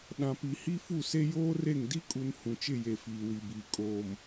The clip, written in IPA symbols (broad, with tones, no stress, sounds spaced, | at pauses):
ɗ ã˨ p i˨ h i˦ f u˦˨ s e˦ j oː˦ r e˦˨ ŋ d i˦ kʼ u˨ n h ũ˨ t͡ʃ ɪ˦˨ j e˨ f iː˨ w i˨ b iː˨ kʼ oː˨ m